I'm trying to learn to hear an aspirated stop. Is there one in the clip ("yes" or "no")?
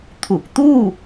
yes